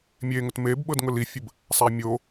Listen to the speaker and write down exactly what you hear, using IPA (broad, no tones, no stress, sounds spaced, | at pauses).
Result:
mʲ e ŋ ʊ t m e b ɓ ɤ d ŋ ʊ l i fʲ ə b | sˤ æ mʲ o